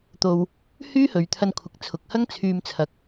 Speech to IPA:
t̪o˧w | hyː˥hɵ˨˧ɥ t̪ʰɐ˧nkʷʰɪ˨k̚t͡sʰʊ˨k̚hɐ˥ŋ t͡sʰyː˧mt͡sʰɐ˨˥k̚

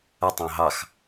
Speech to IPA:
ətˤɑ̃ ɦɑx

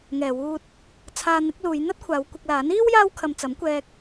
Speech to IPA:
ŋɛː˨ wuː˧t̚ | t͡sʰaː˧n̪ɪ˨˥k̚luː˨˧j n̪ɐ˥t̚kʷʰaː˨˧wkʷɪ˧k̚laː˨˥n iː˥w jaː˥wkʰɐ˧mt͡sɐ˨˥m kʷɛː˧k̚

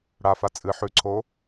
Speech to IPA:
ɽafa t͡sʼɨ ħʉǀʰo

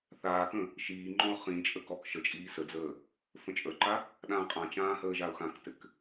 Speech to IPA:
θaːkə̃ | ʃiː ŋ͡ǃɔ̃ʊ̯χĩt͡ʃʼə kɔk ʃət͡ʃʼiː səd͡zəː | fə̃t͡ʃʼə˞ǃa | ɗãːqʼãt͡ʃãː həːʒaʊ̯xãktɘk

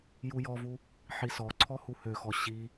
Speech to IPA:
jujɔvu | ħisɔǀʰɔ huhøxɔ ɕi

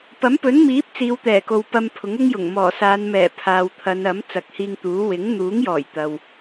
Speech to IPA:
pɐ˨˥mpɵ˨˥nmiː˨˥p̚ t͡siː˨˧wt̪ɛː˨˩ko˨w pɐ˧mpʰʊ˨˥ŋʊ˥ŋjʊ˨˩ŋ mɔː˨˩saː˨˧n mɛː˨˩ pʰaː˨wt̪ʰɐ˨˧nɐ˨˥m t͡sɐ˨k̚hiː˧ŋt̪uː˨˥ wɪ˨˥ŋ n̪uː˨˥ŋjɔː˨˩j t̪ɐ˨w

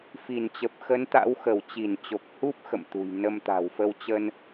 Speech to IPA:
fi˧˩nt͡ɕə˨˩p̚ xə˨˦nt̪a̰˧˥wxə˧˩w t͡ɕi˧˩nt͡ɕo˨˩k̚hu˦˥p̚ xə̰˧˨mt̪ṳ˨˩j nə˧m t̪a̤˨˩wfə˧wt͡ɕə˧n

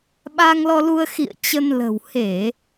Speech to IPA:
ɓa˧ŋlɔ˧lu˧ə̯ xḭ˧˨ə̯ t͡ɕə˧nlə̤˨˩w he˧˩˨

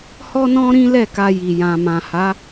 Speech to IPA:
hɔ˦nɔ̃˦ɾĩ˦ lɛ˦˨ka˧ji˨ jã˨mã˨ha˨˦

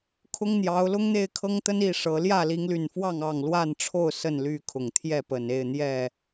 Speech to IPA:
kʰʊ˦ŋn̪jɑ˨˦ʊ̯ lʊ˦ŋn̪e˥˨ɪ̯kʰɤ˦ŋt̪ə˦n i˥˨ʂɤ˨˦ ljä˥˨li˨˦ŋly˨˩nfwɑ˥˨ŋ ɑ˥˨ŋ lwa˥˨nʈ͡ʂʰo˥˨ʊ̯ sə˥˨nly˥˨ kʰʊ˨˩ŋt̪ʰjɛ˥˨ pə˨˩ne˥˨ɪ̯ n̪jɛ˥˨

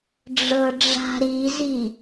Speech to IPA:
ɖ͡ʐɤɖ͡ʐa̤ɾizi

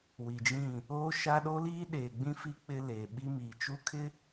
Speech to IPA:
wi˨d͡ʒĩ˦˨ | oː˦ʃa˦ ɗo˦liː˦ɗeː˨ɡ͡bĩ˦ fi˦ k͡pɪ˦leː˨ ɓi˦ miː˨t͡ʃu˦kʰɪ˦

